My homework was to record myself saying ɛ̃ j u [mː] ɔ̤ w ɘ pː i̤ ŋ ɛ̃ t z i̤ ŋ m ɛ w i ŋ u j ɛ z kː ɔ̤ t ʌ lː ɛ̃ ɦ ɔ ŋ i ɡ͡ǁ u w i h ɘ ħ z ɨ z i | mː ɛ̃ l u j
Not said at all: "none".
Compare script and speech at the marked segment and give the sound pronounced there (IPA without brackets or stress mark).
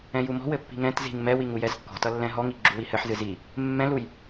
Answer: m